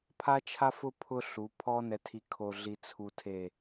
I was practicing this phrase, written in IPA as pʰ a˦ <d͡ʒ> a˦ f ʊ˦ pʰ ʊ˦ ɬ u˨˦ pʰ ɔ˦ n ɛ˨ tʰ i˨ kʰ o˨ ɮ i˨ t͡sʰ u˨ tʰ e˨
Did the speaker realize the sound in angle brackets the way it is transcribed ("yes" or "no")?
no